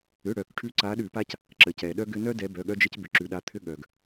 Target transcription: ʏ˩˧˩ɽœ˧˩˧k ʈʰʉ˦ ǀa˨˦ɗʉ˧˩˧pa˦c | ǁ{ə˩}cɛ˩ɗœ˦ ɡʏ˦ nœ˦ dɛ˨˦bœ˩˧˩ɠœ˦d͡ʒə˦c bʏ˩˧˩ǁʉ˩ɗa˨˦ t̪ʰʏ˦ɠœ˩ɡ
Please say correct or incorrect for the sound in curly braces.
correct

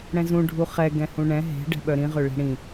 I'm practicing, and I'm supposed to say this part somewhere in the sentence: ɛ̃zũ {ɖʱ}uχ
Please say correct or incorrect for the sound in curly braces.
correct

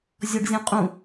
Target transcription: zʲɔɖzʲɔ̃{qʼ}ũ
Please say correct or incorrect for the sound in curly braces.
correct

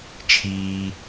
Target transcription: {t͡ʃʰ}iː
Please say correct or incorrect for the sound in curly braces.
correct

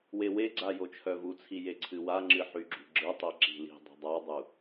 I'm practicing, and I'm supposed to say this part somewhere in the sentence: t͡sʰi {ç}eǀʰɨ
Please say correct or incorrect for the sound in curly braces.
incorrect: j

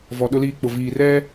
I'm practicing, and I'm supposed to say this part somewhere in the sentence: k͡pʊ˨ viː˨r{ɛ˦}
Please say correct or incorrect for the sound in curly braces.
correct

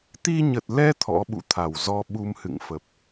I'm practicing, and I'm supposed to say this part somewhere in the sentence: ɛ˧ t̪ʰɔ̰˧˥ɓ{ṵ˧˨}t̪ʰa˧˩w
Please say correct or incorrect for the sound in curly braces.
correct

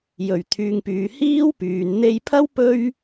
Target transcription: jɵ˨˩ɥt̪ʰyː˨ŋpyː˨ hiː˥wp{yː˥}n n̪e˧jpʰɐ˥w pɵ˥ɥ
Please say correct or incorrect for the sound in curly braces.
incorrect: yː˨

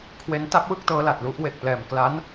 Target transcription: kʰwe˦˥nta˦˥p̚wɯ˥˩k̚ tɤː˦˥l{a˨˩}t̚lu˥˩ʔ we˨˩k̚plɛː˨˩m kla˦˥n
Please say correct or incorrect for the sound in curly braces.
correct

